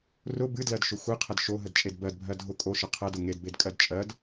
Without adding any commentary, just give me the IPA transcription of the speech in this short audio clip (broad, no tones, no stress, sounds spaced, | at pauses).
r ʊ b ɨ d l ɜ d ʃ ʊ xʷ ɨ qʰ ə d ʃ o ɦ ə d t͡ʃʼ e d b ɜ d bʱ ɜ dʱ ʊ kʼ o ʃ ə qʰ ɜ d ʊ ŋ e d b e d kʼ ɜ d t͡ʃʼ ɜ d